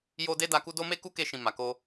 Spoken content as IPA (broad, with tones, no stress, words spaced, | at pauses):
jo˦de˦ da˧ku˦ do˦me˦ ku˦ke˧ʃĩ˨ ma˨ko˧